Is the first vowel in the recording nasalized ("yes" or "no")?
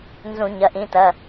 yes